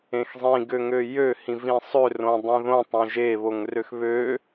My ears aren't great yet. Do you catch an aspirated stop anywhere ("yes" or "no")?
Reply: no